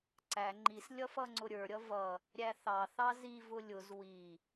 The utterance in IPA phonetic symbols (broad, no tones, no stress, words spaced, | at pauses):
ǀæ ŋ͡ǃis lʲʌfʌŋ͡ǀʊɾʲə˞ ɾʲʌvʌ | ɾʲæθɑ θɑzi vʊlʲʊz wi